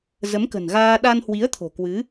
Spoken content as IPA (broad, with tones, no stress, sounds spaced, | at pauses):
z ə˨˦ m k ə̤˨˩ n ɣ aː˧ ɗ a˧ n h w i˨˦ ə̯ t̪ʰ o̤˨˩ k w ɨ˨˦